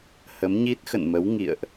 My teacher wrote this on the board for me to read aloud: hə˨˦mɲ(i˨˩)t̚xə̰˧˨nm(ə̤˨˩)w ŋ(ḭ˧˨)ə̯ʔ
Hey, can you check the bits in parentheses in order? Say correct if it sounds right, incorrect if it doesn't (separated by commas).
incorrect, incorrect, correct